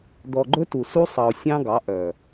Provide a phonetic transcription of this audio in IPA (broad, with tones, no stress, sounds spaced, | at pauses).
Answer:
d̪ ɔ˨ ɡ͡ǃ ɵ˦ t u˨ s u˦ sˤ ɑ˨ o̯ sʲ ɑ̃˦ ɡ ɑ˨˦ ʔ œ˨